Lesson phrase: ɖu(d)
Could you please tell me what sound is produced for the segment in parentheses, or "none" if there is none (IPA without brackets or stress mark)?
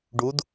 d